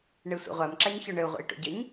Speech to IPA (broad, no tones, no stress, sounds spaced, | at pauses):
ɳ e sʷ ɛ̰ ʁʷ a m ǁ a ɲ ç ɔ ɳ ɘ u̯ ʁʷ ɛ̰ i̯ ʈ o̰ ɟ ɘ ɲ